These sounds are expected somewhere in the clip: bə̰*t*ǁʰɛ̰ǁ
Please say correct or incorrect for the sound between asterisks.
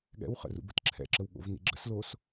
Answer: correct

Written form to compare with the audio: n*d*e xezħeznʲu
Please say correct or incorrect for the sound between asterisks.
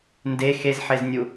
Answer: correct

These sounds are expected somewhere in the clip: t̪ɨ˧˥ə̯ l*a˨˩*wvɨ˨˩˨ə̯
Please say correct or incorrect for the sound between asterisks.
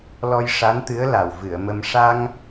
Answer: correct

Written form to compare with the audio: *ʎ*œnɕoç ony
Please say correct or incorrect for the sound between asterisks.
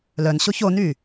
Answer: incorrect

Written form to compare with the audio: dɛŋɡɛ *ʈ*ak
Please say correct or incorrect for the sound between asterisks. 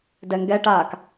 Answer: correct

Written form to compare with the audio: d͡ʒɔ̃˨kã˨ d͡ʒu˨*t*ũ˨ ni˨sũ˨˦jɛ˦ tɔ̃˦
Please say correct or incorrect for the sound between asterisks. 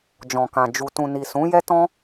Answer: correct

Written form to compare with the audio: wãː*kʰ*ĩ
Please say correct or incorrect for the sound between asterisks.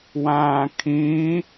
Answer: correct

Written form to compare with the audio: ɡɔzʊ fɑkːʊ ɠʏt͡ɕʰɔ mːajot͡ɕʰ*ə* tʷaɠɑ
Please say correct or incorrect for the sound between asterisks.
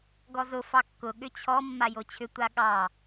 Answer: incorrect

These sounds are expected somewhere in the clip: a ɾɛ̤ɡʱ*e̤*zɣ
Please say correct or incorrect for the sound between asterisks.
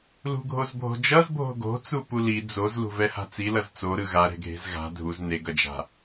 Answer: correct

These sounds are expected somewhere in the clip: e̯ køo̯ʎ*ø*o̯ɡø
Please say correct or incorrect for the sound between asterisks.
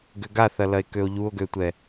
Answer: incorrect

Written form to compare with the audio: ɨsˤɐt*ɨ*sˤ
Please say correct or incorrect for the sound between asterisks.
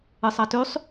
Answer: incorrect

